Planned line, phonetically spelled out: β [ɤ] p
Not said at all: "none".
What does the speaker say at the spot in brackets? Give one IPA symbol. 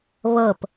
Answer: ɤ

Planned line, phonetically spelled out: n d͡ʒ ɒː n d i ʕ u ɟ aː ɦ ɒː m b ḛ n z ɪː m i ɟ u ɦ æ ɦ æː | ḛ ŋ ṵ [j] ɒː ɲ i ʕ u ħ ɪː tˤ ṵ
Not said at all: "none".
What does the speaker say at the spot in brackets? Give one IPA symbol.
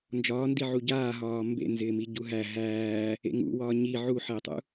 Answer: w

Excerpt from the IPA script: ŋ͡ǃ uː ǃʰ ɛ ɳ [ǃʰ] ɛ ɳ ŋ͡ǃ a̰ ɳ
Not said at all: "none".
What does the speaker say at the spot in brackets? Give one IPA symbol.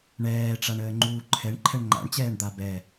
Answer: ǃʰ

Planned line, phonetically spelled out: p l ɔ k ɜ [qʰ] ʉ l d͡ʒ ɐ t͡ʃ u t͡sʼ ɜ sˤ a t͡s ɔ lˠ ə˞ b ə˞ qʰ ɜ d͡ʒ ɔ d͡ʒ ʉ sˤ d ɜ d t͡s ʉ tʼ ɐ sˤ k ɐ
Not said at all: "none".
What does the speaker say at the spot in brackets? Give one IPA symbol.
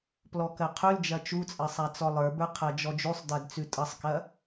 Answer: qʰ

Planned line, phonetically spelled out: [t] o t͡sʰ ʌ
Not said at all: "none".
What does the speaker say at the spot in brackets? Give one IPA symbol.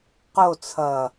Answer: q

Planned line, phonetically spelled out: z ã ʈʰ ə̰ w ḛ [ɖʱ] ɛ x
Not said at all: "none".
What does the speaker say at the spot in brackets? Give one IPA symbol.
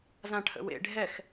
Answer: ɖʱ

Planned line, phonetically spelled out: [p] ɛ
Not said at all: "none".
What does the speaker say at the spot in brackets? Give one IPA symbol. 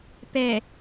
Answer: p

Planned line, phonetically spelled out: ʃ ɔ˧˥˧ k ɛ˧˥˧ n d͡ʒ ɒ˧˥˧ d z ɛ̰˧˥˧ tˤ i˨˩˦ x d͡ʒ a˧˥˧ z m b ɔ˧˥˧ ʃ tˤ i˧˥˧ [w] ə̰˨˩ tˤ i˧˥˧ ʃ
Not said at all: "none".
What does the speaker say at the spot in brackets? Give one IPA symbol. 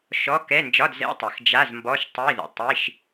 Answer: ð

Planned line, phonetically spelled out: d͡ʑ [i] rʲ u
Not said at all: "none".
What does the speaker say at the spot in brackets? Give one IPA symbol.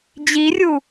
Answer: i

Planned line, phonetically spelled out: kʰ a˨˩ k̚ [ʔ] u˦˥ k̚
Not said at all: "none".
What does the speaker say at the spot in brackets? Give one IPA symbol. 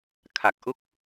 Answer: ʔ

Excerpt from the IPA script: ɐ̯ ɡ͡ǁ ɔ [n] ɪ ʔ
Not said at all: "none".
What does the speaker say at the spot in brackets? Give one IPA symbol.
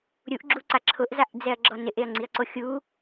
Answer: n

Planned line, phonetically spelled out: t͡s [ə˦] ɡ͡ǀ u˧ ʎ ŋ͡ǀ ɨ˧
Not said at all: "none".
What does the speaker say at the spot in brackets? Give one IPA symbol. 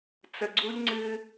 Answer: ə˨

